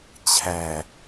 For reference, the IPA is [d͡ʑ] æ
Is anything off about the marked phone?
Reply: yes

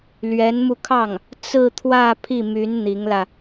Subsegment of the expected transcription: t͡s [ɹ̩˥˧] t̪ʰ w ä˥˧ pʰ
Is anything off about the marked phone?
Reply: no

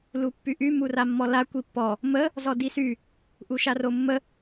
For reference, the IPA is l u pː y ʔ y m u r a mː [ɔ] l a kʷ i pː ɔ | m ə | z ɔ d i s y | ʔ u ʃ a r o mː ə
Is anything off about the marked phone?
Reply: no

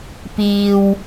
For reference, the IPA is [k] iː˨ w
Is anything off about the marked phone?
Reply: yes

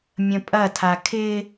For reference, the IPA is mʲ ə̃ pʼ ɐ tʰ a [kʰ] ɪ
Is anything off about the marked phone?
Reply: no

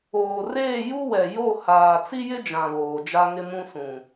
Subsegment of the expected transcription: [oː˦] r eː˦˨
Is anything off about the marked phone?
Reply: yes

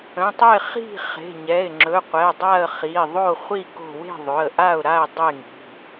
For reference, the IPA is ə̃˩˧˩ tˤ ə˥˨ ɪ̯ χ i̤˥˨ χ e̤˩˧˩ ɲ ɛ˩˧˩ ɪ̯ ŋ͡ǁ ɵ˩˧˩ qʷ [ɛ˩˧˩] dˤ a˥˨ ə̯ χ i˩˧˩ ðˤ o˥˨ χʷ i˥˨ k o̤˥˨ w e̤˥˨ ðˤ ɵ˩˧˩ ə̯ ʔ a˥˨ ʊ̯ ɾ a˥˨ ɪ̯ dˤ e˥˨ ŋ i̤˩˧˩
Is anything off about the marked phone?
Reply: no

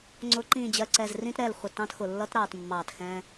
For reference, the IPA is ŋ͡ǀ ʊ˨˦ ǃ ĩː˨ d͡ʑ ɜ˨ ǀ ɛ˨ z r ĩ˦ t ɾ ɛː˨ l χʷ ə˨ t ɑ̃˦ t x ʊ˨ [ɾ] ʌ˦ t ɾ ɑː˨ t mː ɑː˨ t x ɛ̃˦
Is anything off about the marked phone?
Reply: yes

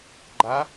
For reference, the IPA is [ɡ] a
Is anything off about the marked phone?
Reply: yes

